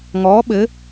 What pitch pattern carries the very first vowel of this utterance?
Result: rising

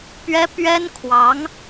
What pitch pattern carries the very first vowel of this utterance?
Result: high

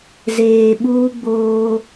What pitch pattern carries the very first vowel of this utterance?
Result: low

